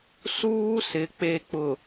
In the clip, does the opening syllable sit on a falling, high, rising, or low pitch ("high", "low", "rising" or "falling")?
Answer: high